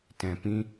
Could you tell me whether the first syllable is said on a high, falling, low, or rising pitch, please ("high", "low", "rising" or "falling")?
low